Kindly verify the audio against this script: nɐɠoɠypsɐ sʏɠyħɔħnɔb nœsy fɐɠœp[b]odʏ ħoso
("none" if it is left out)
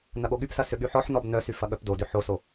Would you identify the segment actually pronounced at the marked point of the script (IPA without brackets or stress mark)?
d